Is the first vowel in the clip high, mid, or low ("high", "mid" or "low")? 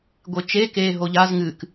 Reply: mid